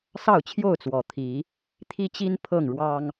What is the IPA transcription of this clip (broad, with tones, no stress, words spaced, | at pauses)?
sɑ˥˨ʊ̯t͡ɕʰjo˥˨ʊ̯ t͡swɔ˨˩t̪ʰi˨˦ | t̪ʰi˦t͡ɕi˦n pʰɤ˥˨ŋɻwɑ˦ŋ